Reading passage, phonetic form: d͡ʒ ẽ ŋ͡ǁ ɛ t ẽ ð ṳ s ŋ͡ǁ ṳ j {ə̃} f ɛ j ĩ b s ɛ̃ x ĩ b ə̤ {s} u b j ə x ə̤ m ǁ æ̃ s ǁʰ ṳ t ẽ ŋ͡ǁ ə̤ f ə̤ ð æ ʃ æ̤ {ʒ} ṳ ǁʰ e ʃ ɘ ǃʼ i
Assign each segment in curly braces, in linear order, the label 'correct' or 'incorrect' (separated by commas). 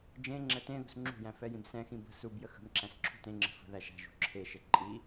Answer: incorrect, correct, correct